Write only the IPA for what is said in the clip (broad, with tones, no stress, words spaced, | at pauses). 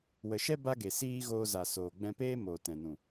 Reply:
wə˨ʃɛ˦ ba˦ɡe˨ siː˦ ɣoː˧za˨ soː˨ɡ͡bɛ̃˧peː˦ mo˨ tɛ̃˨nũ˨